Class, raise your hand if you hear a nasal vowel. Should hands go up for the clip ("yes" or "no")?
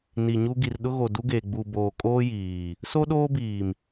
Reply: no